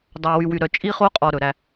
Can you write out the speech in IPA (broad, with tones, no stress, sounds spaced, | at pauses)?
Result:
dˤ ɑ˨ w y˨ w y˨ ɾ œ˨ t͡ʃʼ i˦ χ o˦ qʼ ɔ˨ ɾ ɵ˨ ɾ æ˦